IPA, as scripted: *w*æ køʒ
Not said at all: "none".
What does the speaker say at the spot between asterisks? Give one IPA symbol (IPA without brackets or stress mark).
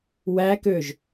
w